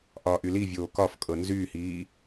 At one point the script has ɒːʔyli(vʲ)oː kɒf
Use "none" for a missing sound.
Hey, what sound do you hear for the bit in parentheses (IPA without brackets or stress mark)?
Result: vʲ